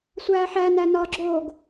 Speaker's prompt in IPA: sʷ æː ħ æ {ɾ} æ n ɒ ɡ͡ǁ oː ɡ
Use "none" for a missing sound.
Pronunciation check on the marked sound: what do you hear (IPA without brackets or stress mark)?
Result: n